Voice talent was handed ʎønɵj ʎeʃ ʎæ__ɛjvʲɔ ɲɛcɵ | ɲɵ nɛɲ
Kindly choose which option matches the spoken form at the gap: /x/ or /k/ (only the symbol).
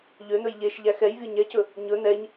x